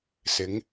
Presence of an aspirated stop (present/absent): absent